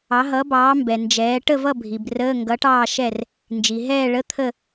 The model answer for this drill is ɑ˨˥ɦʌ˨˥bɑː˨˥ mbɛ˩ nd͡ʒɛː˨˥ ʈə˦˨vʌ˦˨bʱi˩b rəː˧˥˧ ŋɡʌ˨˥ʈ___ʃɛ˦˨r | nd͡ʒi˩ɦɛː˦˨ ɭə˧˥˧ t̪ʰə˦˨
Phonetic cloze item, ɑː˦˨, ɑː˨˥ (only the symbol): ɑː˦˨